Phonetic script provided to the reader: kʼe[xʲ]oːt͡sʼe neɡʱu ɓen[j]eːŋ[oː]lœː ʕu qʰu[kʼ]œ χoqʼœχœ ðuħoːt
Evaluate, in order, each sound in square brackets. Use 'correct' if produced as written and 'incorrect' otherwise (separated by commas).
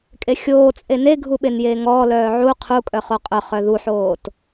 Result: correct, correct, incorrect, correct